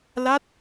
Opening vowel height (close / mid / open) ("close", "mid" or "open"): open